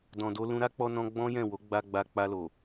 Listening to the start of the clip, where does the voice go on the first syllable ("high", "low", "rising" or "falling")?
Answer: low